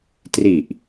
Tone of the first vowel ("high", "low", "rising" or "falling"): low